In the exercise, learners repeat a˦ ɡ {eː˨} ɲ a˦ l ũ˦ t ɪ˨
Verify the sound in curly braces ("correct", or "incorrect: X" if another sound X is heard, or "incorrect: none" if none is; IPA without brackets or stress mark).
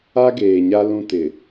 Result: correct